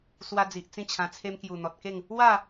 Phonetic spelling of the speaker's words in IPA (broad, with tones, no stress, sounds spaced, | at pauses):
s w a˧ d͡z i˨ ʔ t͡s ĩ˥˧ t͡ɕʰ ã˧ t͡sʰ e˦ m k j u˨˩ n̪ ɔ˨ t̚ k e˥˧ ŋ | w a˥˧